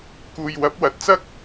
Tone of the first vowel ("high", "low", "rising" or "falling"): low